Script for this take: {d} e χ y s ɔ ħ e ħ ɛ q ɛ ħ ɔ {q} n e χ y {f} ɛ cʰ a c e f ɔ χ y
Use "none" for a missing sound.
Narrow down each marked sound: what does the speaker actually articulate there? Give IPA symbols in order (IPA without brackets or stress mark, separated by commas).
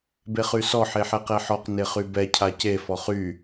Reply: b, q, b